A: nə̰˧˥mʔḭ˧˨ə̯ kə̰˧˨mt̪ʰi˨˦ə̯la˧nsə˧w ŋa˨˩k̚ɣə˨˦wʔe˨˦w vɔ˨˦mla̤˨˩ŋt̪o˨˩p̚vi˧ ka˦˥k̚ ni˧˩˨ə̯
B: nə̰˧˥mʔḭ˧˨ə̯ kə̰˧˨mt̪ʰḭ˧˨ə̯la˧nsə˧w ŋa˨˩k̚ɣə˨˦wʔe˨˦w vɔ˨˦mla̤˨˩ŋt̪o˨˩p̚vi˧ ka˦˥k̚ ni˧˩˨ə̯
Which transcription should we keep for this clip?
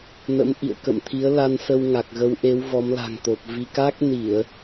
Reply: A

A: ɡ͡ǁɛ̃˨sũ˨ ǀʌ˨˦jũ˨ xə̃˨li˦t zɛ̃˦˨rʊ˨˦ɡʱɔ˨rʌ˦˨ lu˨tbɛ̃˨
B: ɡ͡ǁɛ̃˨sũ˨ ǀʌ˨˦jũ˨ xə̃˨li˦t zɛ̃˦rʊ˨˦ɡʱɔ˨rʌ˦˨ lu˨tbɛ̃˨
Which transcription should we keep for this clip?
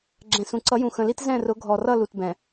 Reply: A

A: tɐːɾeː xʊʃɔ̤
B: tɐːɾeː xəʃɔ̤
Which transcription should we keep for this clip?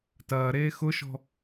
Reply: A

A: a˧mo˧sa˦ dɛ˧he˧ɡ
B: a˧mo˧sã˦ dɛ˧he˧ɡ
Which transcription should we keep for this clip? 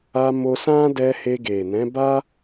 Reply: B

